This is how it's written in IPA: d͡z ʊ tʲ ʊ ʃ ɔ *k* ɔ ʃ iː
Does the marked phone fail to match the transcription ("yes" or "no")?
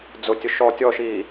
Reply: yes